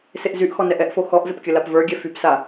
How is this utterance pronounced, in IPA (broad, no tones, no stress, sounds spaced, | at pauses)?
s e ʔ z y ʔ x ɔ n ɛ ʔ ɛ ʔ f o x ɔ ʔ z ə p kʲ ə l a p v ə˞ ɡʲ ɛ f y p s a